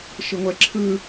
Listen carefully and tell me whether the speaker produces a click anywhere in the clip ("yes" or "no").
yes